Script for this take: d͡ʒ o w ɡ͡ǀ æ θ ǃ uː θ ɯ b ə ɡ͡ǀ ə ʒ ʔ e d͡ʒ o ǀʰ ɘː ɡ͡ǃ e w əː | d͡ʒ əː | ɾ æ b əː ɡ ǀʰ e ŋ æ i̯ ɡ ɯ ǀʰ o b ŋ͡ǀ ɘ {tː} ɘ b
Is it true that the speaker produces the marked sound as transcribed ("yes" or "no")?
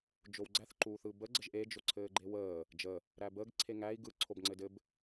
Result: no